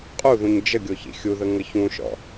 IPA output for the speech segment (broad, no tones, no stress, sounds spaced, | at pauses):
qʼ u ð ũ ɲ d͡ʒ ə ɡʲ o ç ḭ xʲ u ð ə ŋ ə ç ũ ʃ ɔ̰